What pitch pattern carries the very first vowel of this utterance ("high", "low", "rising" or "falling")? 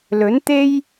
rising